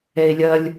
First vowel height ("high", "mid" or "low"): mid